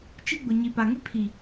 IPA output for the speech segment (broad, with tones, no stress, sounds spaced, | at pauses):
t͡ʃ i˦ ɡ͡b ʊ˨ ɲ i˨ p a˨ ŋ ɪ˦ pʰ i˨